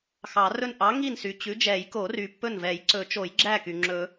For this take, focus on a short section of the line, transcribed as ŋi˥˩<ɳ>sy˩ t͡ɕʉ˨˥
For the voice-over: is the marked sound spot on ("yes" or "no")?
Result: no